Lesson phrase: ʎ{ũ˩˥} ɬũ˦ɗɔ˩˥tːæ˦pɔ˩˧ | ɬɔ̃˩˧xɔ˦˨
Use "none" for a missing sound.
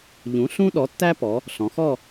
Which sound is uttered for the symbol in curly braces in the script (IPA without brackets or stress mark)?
ũ˩˥